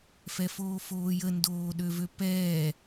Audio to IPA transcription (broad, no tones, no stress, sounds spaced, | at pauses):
f ɛ f oː f oː j ə n d oː ɗ ø v ø p ɛː